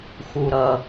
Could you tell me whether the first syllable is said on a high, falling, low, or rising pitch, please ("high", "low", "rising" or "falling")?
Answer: low